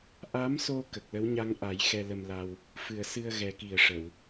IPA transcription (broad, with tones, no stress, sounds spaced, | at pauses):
ʔ a˧˥ m s o˧ k ə˨˩ k̚ l ə˧˥ w ɲ a˧ ŋ ʔ a˨˩˦ j x ɛ˧ l ə˧ m l a˧ w | f ɨ˨˩ ə̯ s ɨ˧ ə̯ ɣ ɛ˨˩ k i˨˩ ə̯ ʂ ə˨˩˨ w